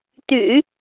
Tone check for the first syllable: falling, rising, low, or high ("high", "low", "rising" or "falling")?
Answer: low